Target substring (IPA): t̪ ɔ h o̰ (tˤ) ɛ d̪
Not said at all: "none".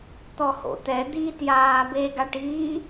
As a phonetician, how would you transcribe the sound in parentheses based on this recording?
t̪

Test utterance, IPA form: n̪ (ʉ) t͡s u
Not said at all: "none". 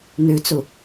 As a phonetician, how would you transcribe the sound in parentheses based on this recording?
ʉ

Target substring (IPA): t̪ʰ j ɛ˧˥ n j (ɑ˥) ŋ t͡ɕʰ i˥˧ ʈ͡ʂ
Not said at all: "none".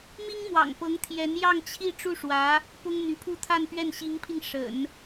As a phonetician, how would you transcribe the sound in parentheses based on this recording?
ɑ˥˧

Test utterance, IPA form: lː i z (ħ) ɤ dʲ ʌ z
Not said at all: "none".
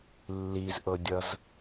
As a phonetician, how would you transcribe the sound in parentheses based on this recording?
ʔ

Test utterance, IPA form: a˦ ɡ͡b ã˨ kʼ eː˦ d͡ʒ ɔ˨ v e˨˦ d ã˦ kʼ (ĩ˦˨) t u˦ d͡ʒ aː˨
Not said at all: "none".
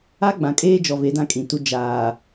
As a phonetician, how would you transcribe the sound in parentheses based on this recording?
ĩ˨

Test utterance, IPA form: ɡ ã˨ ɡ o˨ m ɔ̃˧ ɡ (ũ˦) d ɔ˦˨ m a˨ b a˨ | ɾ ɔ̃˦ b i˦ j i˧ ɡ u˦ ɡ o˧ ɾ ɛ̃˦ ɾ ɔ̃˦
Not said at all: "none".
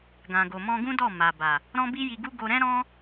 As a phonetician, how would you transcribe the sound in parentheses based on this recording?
ũ˦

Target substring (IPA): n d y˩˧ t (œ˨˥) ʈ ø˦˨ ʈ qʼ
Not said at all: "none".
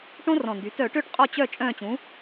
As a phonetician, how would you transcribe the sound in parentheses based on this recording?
œ˧˩˧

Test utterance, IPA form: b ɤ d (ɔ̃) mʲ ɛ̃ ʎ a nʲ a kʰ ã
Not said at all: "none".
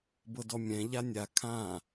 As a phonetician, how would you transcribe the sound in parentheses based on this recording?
ɔ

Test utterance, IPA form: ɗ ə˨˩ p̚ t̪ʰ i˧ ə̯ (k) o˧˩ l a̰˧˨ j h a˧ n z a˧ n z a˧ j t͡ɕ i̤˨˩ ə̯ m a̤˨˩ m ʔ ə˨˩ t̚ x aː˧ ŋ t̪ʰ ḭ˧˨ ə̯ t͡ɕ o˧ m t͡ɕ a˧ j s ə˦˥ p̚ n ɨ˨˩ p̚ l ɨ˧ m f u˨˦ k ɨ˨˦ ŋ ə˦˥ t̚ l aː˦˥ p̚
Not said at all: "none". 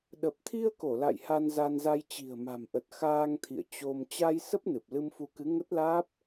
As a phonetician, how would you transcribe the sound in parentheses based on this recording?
k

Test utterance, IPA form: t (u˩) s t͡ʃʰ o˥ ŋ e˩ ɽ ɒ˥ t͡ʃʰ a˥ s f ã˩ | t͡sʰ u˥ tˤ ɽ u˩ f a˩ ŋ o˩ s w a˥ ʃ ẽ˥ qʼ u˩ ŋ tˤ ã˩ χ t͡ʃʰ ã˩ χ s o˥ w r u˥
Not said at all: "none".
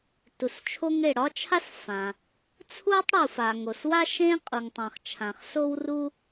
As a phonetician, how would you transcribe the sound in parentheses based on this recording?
u˩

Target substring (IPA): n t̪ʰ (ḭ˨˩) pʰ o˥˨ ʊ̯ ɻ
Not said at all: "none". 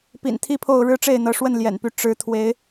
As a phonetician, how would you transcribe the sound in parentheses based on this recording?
i˦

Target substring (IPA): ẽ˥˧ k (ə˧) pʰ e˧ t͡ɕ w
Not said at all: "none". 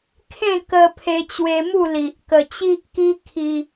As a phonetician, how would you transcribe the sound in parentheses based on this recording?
ə˧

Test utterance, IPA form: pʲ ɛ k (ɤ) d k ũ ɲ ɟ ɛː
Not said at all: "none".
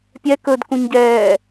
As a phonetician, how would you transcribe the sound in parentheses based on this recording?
ɵ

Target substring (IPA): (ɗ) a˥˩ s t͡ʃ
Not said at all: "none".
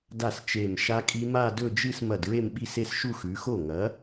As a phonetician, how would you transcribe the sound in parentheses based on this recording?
d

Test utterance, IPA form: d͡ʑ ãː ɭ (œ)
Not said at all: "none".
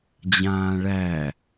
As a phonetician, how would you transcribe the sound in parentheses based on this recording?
æ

